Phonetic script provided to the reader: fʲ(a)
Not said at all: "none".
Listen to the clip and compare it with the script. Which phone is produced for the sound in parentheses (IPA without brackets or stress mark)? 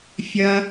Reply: ɐ